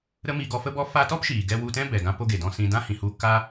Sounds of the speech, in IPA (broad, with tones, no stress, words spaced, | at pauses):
ɾə˦mi˧ ɡɔ˧fə˦bɔ˦faː˦ tɔ˦pʃiː˨ɡɛ˧ wu˧tɛ̃˦bɛ˨ɡã˧ po˦ɡe˨ dɔ̃˧sĩ˧ dã˦hĩ˨hu˧ ka˦